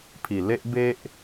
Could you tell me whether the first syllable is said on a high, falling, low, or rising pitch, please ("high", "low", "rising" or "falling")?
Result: low